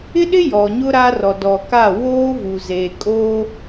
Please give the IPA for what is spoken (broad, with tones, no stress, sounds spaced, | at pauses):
ɪ˦ ɗ ɪ˦ j ɔ˨ ɲ ʊ˦ ɾ a˦ r ɔ˨ d ɔ˨ k a˦˨ w oː˦ v u˨ z eː˨ kʼ oː˦